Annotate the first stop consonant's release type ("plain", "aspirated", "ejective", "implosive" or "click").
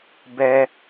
plain